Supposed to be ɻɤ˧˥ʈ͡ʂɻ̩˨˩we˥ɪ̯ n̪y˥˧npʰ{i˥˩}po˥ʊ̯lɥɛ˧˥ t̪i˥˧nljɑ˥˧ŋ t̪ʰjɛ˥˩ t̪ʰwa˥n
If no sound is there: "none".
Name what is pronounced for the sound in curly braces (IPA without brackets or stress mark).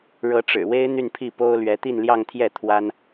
i˥˩